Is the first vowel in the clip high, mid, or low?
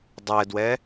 mid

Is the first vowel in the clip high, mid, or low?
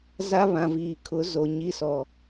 low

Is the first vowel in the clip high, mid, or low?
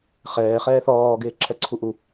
mid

